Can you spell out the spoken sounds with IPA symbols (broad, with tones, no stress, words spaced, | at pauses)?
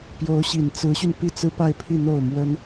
pjo˧˥ʊ̯ɕi˨˩nt͡sɹ̩˧˥ɕy˧n pi˥˩t͡sɹ̩˥ pa˥˧ɪ̯pʰi˥˧ n̪o˥˩ʊ̯mwə˥n